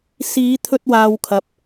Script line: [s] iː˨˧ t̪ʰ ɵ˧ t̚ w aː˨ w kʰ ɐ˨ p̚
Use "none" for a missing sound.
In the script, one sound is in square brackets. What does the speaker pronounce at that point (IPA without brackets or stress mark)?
s